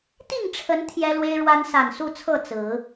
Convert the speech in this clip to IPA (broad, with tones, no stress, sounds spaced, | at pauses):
t̪ i˥˨ ŋ ʈ͡ʂʰ ə˨˦ n t̪ʰ j ɛ˦ l w e˦ ɪ̯ ɻ w a˦ n s a˨˩ n s u˥˨ t͡sʰ ɤ˥˨ t͡s ɹ̩˨˦